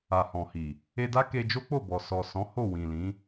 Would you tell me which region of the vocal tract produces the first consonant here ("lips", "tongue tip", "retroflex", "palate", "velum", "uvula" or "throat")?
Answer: throat